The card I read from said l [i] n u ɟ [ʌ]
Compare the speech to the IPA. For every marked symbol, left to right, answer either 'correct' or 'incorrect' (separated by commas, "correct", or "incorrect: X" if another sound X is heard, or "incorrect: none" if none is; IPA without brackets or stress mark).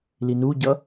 correct, correct